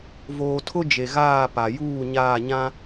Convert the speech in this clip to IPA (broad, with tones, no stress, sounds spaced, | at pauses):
v oː˨ tʰ ʊ˦ d͡ʒ e˨ ɣ aː˦˨ p a˨ j uː˦˨ ɲ aː˦˨ ɲ ã˦